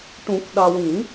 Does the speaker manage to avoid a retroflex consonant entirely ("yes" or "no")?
no